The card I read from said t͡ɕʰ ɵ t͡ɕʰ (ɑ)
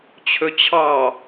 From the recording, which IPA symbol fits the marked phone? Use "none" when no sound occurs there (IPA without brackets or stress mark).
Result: ɑ